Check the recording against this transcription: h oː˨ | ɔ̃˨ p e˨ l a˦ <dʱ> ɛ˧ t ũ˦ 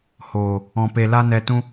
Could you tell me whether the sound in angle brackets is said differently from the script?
yes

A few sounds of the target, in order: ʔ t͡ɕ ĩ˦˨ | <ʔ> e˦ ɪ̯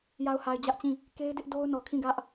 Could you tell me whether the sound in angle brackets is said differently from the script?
yes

